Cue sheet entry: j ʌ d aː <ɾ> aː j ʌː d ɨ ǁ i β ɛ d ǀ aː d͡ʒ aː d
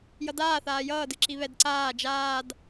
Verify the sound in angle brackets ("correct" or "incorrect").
incorrect